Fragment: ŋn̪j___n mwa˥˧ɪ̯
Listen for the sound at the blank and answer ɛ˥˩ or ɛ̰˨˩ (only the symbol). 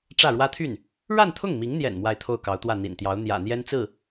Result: ɛ̰˨˩